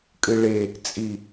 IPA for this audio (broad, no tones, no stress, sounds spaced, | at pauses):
kʼ ɨ ɭ e | t͡sʼ i